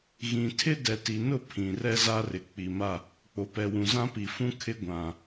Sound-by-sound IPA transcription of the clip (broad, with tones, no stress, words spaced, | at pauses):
ɣĩ˨ tʰɪ˦dɛ˨ti˨nʊ˦˨ pʰĩ˨rɛ˦za˦rɪ˨ k͡pi˨ma˦˨ | k͡po˨pɛ˨wũ˨ zã˦pi˨ fũ˦kʰɪ˦ ɡʷã˨